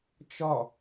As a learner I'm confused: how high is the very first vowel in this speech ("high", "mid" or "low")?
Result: mid